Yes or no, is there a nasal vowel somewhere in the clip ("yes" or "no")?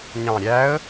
yes